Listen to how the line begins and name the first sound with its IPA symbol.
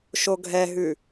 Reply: ʃ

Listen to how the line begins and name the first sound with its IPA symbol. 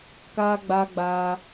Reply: k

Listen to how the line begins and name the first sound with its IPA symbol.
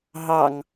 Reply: ɦ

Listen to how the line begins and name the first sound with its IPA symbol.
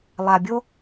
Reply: lˠ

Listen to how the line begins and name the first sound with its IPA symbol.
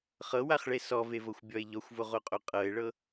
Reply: χ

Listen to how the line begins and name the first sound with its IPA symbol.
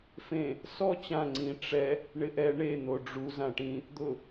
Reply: f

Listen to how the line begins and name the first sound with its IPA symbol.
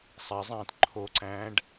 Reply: sˤ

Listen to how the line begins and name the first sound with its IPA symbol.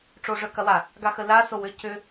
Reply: ʈ͡ʂ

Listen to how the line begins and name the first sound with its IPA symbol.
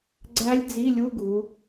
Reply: ɡ͡ǀ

